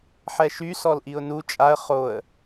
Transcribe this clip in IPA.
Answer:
ħ ɛ ʃ y s ɔ l ʔ i ʊ̯ n u t͡ʃʼ a ə̯ χ o ə̯

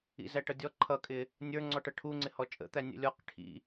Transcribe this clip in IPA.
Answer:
ḭ z æ ʈ ʌ dʲ ɔ ǃʰ ʌ kʼ ɪ | nʲ ə˞ ŋ͡ǀ ɔ ʈ ʌ ʈʰ u ŋ͡ǀ ɪ h ɔ t͡ʃʼ ə̰ t̪ æ nʲ ə̰ lʲ ɔ q ʈʰ ḭ

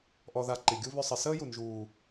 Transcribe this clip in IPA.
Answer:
ʔ ɔ˧ ð a˧ ǃ i˨ ɡʲ u˦ β ʏ˧ sˤ ɘ˨ s əː˦ j u˨ n ʒ uː˨

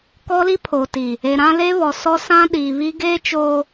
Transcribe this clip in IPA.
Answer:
k ɔ˦ l i˦ pʰ oː˨ t i˨ | e˨ ɾ ã˦ l e˦ β ɔ˨ s ɔ˦ s ã˦ ɗ iː˨ β i˦ ɡ eː˦ t͡ʃ oː˨

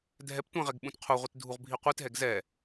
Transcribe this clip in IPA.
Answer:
dʱ ɛ p tʷ ɛ̃ ʁ ɛ ɡ ɓ ũ t qʰ u ʁʷ i t dʱ u ʁ bʱ i qʷ i t ɦ ɛ ɡ z ɛ

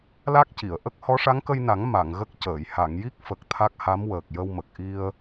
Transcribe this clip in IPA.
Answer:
l a˦˥ k̚ c i˨˩˨ ə̯ ʔ ə˦˥ k̚ h ɔ˧˥ ʂ a˧˥ ŋ k ə˧ j n a˨˩˦ ŋ m a˨˩˨ ŋ ɣ ə˦˥ k̚ c əː˨˩˨ j h a˨˩˨ ŋ j i˦˥ k̚ f ə˨˩ k̚ t̪ʰ a˦˥ k̚ h a˧˥ m w əː˨˩ k̚ j ə˧ w m ə˨˩ k̚ ʔ i˧ ə̯

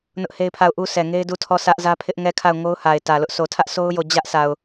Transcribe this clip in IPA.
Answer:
n ʊ˦ ʔ h e˦ ɪ̯ pʰ a˦˨ ʊ̯ ʔ u˦ sʰ ɛ˨ ŋ e˦ ɪ̯ d u˦˨ tʰ ɔ˦˨ sʰ ä˦ ʔ z ä˦ pʰ ɪ˦ ʔ ŋ ɛ˦˨ kʰ a˦˨ ʊ̯ ŋ o˦ ʊ̯ h a˨ ɪ̯ t ä˨ l ʊ˦ ʔ s o˨ tʰ ä˦ ʔ s o˦ ʊ̯ j o˦˨ d͡ʑ ä˦ ʔ s a˨ ʊ̯

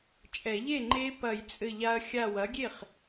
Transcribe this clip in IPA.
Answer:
t͡ʃʼ ɛ˨˩˦ ʎ e˥˩ ŋ͡ǃ e˦˥ p ɐ˨˩˦ j t͡sʼ ɘ˧˩ ʎ a˧ ɐ̯ xʲ a˧˩ w ɐ˩˥ ɡʲ e˥˩ χ

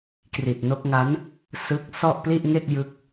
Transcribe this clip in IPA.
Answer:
k r i˨˩ t̚ n o˦˥ k̚ ŋ a˦˥ n | s ɯ˦˥ k̚ s ɔ˥˩ ʔ p l i˥˩ ʔ ŋ e˥˩ k̚ j ɯ˦˥ k̚

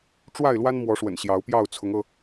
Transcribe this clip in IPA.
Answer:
ʈ͡ʂ w a˥˨ ɪ̯ l w a˦ n m w ɔ˨˦ ʂ w ə̰˨˩ n ɕ j ɑ˨˦ ʊ̯ p j ɑ˥˨ ʊ̯ t͡sʰ ʊ˨˦ ŋ ɤ˧

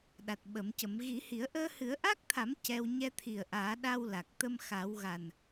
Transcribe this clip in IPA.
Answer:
ɗ a˨˩ t̚ ɓ ə˨˩˦ m c ə˨˩˦ m ɣ i˨˩˦ h i˨˩˦ ə̯ ʔ əː˧ h ɨ˨˩˦ ə̯ ʔ a˦˥ k̚ t̪ʰ a˨˩˦ m c ɛ˧ w ɲ ɛ˧ t̪ʰ i˨˩ ə̯ ʔ aː˨˩˦ ɗ a˧ w l a˨˩ k̚ t̪ ə˧ m x a˨˩˦ w ɣ a˨˩ n

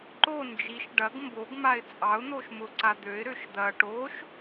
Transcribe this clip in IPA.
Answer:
ǃ o n d͡ʒ i ʃ ɖ ɐ ɡ m b o ɡ m a ɪ̯ t͡sʼ ɑ ʊ̯ n̪ o ʃ m ʊ ǀ a d̪ ø ɪ̯ ɾ ø ʃ d̪ ɐ ʈ o ʃ

